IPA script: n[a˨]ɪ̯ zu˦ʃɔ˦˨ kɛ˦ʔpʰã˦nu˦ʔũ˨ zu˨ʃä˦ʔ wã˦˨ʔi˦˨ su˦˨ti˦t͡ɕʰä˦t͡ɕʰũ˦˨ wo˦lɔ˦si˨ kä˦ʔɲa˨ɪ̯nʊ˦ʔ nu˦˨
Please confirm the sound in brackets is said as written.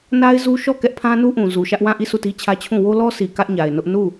no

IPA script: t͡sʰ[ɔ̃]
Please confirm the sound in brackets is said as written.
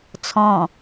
yes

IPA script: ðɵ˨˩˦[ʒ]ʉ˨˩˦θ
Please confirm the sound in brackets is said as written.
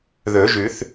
yes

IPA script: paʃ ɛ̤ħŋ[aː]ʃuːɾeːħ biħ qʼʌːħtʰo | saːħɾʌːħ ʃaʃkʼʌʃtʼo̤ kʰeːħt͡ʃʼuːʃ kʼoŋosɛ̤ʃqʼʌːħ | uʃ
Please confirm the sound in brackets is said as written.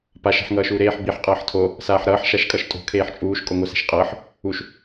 no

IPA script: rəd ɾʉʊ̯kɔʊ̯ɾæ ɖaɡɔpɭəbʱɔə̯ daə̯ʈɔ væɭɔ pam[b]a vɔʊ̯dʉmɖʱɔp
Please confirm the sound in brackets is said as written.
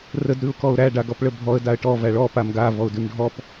no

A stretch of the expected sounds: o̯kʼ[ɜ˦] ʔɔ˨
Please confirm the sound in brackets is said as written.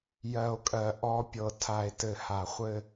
no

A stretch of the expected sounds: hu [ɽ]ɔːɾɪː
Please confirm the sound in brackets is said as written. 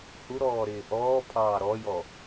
no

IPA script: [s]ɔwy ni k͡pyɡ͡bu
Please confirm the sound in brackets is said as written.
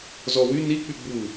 no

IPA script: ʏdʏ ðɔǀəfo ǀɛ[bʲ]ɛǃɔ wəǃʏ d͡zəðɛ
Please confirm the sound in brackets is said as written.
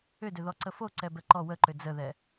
no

